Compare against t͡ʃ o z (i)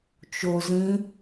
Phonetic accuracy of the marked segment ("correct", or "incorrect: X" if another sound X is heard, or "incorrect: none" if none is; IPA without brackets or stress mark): incorrect: ĩ